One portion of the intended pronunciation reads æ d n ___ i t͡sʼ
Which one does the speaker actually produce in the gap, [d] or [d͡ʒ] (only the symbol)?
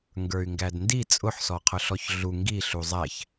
d